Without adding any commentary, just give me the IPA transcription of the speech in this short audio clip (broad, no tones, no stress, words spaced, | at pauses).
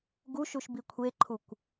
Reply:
ɡuʃuʃbi kʷʰeǃʰukʷ